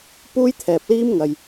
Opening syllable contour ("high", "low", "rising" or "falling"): high